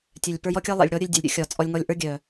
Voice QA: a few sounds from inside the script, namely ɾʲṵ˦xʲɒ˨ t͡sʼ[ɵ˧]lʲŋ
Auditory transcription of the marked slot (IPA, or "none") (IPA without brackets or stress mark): ɔ˧